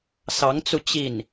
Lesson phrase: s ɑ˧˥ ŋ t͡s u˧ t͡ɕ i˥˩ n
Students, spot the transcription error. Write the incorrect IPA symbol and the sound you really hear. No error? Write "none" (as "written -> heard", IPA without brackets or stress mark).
none